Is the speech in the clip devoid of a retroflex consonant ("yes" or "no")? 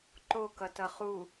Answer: yes